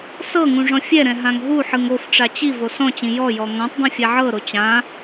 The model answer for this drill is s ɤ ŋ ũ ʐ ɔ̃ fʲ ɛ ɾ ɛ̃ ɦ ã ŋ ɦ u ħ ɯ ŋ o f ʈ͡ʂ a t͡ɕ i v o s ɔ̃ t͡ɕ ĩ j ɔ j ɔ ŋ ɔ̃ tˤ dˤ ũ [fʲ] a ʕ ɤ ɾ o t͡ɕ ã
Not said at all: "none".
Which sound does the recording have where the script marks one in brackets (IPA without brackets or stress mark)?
fʲ